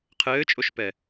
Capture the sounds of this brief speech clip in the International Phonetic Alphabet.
qʰ ɘː t͡ʃʼ o ʃ p ɛ

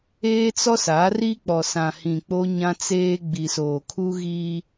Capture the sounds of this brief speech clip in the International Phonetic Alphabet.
eː˦ t͡s ɔ˦ s a˨˦ r i˦ k͡p ɔ˨ s ã˨ h ĩ˨ k͡p o˦ ɲ ã˦ t͡s eː˦ ɡ͡b i˨ s oː˨ kʰ u˦ ɣ iː˦

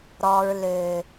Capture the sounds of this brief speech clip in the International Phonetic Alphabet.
ɾ ɔ˨ ɹ l ø˨

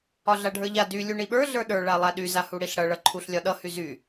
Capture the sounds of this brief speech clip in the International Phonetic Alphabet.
ɒ ɮ a ɖʱ ə˞ ʎ a d y lʲ u ɳ i ɓ ə˞ ɮ ə˞ ɗ ə˞ ɭ a lˠ a ɗ y z a h u ɽ i ɬ ɽ ʌ ɭ ʌ ǃʰ u ɬ lʲ ɒ ɗ ʌ h y z y

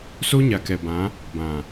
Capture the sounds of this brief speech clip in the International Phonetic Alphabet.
s o˦ ɲ a˨ k ɛ˨ b ã˨˦ | b ã˨

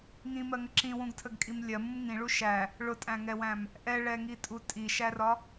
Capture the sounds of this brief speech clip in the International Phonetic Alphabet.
ŋ ĩ m ɜ ŋ ə ǁ ĩ w ũ ɡ tʰ ə ɡ kʼ i m lʲ ɜ m ũ m ŋ ĩ ɭ u ʃ æ | ɭ ʊ tʼ æ̃ ŋ ɛ w æ̃ m | ʔ ɛ ɭ ɛ ŋ i tʼ u tʼ i ʃ æ r ɒ

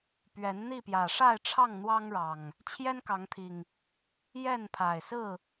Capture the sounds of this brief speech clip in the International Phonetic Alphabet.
p ɥ ɛ˨˦ n n̪ i˥˨ p j ä˨˩ ʂ a˥˨ ɪ̯ ʈ͡ʂʰ ɑ˥˨ ŋ n̪ w ɑ˦ ŋ ɻ ɑ˨˩ ŋ | t͡ɕʰ j ɛ˦ n k ɑ˨˦ ŋ t̪ʰ i˨˩ ŋ | j ɛ˥˨ n pʰ a˨˩ ɪ̯ s ɹ̩˥˨

